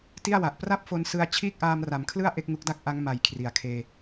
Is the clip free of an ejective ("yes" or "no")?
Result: yes